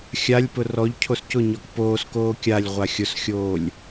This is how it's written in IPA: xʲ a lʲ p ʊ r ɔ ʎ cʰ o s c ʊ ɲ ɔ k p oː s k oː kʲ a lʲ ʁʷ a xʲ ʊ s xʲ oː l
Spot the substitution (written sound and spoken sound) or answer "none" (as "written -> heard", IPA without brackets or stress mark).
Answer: l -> lʲ